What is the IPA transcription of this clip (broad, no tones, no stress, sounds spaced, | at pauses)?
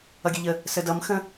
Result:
ʌ ɡʲ ə ʎ ə | s ə d ʌ m x ə̃